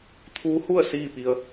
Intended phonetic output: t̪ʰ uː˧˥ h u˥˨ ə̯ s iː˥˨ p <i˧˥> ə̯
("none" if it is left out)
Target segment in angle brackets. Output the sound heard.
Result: i˧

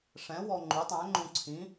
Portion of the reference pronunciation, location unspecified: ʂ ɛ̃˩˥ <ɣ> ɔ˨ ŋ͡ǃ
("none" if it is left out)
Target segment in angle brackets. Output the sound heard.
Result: w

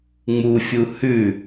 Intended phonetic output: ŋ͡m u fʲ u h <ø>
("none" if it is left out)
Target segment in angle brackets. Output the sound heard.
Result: ʉ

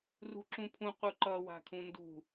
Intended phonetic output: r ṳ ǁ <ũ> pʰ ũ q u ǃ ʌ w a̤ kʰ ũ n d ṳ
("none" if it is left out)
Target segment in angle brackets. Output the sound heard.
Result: ũ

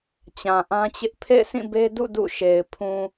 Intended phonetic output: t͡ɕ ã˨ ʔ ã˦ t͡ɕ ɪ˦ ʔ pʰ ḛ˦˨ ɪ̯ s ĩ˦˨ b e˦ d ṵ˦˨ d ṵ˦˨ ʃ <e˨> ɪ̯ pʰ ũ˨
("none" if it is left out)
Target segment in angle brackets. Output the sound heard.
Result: e˨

